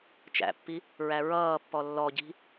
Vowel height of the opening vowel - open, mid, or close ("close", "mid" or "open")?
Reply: open